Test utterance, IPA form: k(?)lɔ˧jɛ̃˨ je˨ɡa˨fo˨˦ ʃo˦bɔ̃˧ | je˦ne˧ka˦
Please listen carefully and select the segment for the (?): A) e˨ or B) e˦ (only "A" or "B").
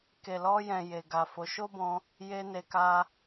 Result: A